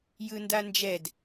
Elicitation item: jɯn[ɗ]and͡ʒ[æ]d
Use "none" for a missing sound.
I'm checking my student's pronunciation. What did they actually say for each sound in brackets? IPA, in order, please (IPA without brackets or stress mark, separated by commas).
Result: d, ɛ